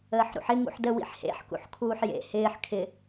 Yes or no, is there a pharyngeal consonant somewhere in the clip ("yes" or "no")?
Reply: yes